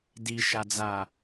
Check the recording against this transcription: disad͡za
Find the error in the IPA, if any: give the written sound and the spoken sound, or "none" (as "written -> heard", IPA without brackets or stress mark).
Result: s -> ʃ